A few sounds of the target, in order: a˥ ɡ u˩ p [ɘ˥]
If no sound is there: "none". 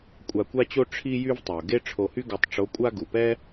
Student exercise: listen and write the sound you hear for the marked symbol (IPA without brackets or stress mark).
ɛ˥